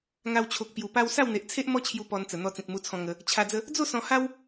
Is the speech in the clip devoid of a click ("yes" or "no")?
yes